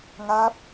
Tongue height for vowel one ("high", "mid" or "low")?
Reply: low